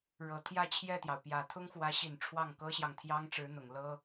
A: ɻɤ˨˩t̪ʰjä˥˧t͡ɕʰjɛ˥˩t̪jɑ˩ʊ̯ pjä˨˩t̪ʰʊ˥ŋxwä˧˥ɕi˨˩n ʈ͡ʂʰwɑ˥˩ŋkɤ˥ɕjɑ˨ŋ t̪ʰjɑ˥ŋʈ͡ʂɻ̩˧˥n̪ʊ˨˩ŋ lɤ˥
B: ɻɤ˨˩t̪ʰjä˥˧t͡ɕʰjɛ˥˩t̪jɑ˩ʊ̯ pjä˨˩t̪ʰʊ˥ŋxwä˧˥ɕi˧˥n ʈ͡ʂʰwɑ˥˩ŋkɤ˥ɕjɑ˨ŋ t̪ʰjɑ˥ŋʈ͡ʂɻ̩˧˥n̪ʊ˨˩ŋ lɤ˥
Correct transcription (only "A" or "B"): A